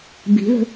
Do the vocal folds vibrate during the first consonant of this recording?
yes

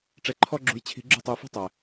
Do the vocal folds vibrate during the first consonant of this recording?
no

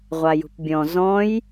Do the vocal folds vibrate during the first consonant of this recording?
yes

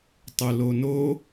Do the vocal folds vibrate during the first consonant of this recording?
no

